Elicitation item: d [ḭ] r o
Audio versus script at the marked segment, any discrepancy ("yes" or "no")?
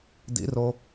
no